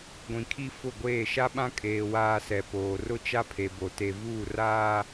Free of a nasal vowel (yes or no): no